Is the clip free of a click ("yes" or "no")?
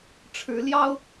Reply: yes